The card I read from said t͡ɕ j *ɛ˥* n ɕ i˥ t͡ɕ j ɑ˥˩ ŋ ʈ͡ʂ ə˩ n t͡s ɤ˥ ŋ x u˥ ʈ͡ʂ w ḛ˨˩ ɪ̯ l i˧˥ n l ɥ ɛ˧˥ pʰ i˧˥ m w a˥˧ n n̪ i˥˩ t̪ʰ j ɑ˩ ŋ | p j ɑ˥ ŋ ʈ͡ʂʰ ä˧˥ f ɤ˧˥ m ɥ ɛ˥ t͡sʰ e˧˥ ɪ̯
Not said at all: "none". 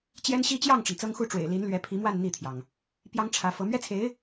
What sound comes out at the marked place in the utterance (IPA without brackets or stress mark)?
ɛ˥